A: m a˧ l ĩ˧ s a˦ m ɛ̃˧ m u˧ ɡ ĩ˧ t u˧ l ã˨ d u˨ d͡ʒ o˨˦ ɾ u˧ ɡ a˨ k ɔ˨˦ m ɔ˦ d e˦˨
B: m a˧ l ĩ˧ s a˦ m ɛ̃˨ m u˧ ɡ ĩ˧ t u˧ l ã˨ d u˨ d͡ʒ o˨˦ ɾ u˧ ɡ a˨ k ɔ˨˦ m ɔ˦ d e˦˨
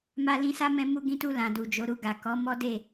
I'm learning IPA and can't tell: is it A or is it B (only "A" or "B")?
A